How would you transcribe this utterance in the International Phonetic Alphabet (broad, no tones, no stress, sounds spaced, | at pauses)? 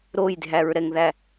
ɾ o j dʱ æ ɹ ɾ ɛ ŋ ð æ